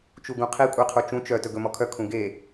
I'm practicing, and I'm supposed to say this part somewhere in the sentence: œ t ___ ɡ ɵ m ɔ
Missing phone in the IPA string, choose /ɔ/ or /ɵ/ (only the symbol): ɵ